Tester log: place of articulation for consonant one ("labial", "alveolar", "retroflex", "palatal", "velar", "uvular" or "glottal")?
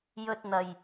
palatal